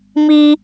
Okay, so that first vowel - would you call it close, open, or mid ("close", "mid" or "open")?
close